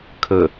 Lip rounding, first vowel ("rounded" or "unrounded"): unrounded